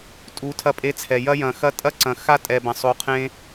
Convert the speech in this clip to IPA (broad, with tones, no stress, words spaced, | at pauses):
tʼu˨˦ tʰɐ˧pʼe˧t͡sʰɛ˨ jɐ˧jɐ̃˨xɐ˧ tʼɐ˦ǀɐ̃˨ xa˦tʼɛ˨ bɐ̃˨sˤo˨˦qʰẽ˧